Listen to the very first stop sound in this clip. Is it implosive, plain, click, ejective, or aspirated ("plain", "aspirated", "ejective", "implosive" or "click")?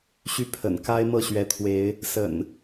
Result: aspirated